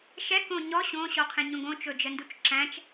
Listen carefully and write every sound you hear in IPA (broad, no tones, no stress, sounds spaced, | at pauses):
ʃ ɛ k õ ɲ ɔ ɕ õ ɕ ɔ qʰ ẽ ɲ õ ɡ õ t͡ʃ ɵ d͡ʒ ə n d u t͡ʃ ǁ æ̃ t͡ʃ